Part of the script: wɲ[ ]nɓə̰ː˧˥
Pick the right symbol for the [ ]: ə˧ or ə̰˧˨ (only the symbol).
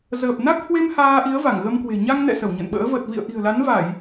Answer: ə̰˧˨